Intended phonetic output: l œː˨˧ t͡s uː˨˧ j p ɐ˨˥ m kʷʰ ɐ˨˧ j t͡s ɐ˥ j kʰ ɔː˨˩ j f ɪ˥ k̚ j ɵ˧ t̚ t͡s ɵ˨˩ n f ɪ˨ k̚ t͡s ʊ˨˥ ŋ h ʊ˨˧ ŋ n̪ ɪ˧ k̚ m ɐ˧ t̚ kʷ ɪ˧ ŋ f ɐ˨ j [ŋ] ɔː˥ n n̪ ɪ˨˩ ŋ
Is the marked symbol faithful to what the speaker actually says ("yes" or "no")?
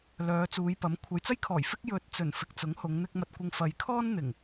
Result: no